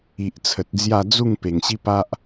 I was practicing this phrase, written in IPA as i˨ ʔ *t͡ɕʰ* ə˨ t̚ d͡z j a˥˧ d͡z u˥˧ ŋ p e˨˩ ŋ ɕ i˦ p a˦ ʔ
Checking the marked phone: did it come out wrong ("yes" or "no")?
yes